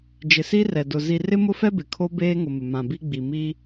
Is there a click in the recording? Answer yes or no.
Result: no